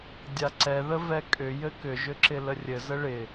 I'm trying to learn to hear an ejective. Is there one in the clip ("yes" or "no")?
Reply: yes